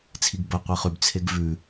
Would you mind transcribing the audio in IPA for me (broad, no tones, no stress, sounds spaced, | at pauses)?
t͡sʰ i ɡ b ɐ qʷ e χ ʉ b t͡sʰ e ɡ v ʉ